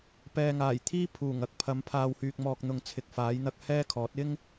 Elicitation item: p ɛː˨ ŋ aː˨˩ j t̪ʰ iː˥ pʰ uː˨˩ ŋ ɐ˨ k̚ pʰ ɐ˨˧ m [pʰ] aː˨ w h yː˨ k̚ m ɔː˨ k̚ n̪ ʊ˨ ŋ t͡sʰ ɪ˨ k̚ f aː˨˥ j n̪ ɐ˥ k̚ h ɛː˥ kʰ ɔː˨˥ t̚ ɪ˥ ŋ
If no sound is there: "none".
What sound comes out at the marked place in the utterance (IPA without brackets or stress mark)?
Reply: pʰ